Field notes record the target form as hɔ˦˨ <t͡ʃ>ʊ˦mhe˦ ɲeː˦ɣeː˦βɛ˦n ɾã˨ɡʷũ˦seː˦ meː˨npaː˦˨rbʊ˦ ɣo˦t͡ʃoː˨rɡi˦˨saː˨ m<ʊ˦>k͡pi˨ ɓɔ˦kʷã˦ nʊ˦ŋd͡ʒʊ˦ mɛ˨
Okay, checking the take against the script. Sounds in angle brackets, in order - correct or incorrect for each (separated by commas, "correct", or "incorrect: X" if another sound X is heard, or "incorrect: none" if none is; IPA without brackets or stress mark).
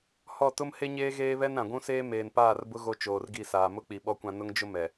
incorrect: t, correct